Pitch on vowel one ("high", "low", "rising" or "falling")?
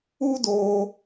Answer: high